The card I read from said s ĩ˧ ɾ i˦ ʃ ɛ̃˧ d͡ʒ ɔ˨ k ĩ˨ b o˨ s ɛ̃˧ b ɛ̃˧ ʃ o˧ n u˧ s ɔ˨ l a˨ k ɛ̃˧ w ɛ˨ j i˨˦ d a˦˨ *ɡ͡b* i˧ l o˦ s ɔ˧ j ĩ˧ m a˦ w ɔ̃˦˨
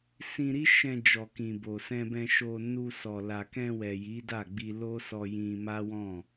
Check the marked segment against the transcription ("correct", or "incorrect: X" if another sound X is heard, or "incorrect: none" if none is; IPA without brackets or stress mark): correct